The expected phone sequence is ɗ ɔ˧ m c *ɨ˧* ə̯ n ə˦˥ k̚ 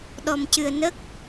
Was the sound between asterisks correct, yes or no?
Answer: yes